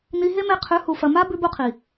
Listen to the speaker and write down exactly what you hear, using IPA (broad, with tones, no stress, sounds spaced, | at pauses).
n i˧ ɦ e˦ m e˧ qʰ ʉ˨˦ h u˨ f ɐ˨ m a˦ b ʉ˧ b u˧ qʰ i˨